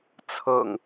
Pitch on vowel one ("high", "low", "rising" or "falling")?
low